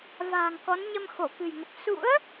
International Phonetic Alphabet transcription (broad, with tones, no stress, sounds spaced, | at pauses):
v a̤ː˨˩ ŋ k ɔ˨˦ n ɲ ə˧ m x o˧˩ k ɨ̤˨˩ j ŋ ə˨˩ p̚ s ṵ˧˥ ə̯